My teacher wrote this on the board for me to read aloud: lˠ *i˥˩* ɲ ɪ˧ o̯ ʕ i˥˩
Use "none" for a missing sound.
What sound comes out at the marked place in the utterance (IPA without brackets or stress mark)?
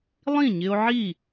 ĩ˥˩